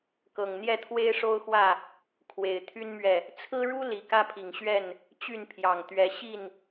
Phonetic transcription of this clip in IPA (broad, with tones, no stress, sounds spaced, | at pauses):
k ɤ˨˩ ŋ n̪ j ɛ˥˨ t̪ʰ w e˦ ɪ̯ ʂ o˦ ʊ̯ x w ä˥˨ | kʰ w e˨˩ ɪ̯ t̪ʰ y˦ n m ɥ ɛ˨ | t͡sʰ ɹ̩˦ ɻ u˦ l i˨˩ k ä˦ pʰ i˨˩ ŋ ɕ ɥ ɛ˥˨ n | t͡ɕ y˥˨ n pʰ j ɑ˨˩ ŋ t̪ ɥ ɛ˨˦ ɕ i˥˨ n